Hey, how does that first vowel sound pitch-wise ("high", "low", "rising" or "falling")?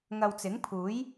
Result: low